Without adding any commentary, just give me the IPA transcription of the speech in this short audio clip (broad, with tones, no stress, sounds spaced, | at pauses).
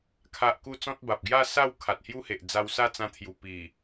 kʰ a˦ ʔ k u˦ t͡s ɔ̃˦ t̚ b a˨ p̚ ɡ j a˥˧ s a˥˧ w kʰ a˨ t̚ h j u˦ h e˨ ʔ d͡z a˧ w s a˥˧ t͡s ã˧ t̪ʰ j u˨˩ p i˨˩